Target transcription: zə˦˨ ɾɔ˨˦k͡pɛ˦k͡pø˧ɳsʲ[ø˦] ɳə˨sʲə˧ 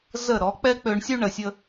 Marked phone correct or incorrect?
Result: incorrect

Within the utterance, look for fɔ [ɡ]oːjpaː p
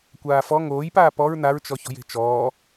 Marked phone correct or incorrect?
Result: incorrect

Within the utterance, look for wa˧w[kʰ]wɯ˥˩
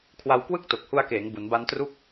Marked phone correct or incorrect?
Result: incorrect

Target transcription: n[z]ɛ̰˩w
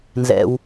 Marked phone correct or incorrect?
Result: correct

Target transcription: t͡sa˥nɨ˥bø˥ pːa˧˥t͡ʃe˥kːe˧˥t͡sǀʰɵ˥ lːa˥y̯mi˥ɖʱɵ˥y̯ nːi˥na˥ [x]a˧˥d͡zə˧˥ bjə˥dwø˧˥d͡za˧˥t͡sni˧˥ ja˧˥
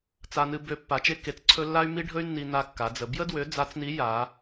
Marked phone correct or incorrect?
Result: incorrect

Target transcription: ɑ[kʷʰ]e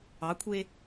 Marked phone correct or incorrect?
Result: correct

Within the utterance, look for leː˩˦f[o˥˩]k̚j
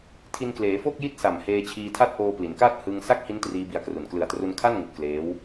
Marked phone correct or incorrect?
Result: correct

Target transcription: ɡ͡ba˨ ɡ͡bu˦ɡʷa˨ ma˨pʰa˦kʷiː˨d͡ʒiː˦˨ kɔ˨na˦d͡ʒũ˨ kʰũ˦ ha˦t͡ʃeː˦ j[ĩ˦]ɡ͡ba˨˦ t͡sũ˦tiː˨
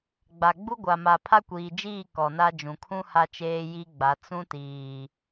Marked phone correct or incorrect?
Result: incorrect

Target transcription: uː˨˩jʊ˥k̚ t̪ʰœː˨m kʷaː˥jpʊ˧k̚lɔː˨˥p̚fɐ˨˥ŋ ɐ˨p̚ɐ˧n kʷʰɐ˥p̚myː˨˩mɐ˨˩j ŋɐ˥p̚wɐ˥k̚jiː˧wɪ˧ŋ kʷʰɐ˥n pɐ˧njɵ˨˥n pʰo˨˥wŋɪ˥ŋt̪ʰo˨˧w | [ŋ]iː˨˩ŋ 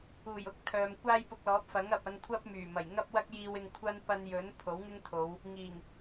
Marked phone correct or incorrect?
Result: correct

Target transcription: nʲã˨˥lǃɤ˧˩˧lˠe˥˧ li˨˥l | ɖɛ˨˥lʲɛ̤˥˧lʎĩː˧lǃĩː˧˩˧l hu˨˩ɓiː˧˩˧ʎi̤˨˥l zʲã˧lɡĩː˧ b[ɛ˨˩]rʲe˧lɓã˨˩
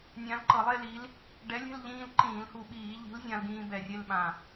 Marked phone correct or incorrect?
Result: correct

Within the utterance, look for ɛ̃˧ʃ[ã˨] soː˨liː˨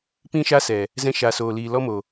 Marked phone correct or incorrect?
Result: incorrect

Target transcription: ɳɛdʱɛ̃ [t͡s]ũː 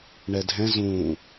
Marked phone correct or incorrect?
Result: incorrect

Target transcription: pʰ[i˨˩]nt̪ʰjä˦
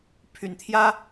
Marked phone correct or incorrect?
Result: incorrect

